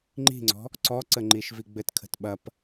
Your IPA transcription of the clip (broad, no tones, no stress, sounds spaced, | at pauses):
ŋ͡ǃ i̤ ŋ͡ǀ ɔ̤ | ǀ ɔ ǀ ə ŋ͡ǃ i ʃ v i ɡ͡b ɘ t kʰ ə̤ t ɓ ɐ p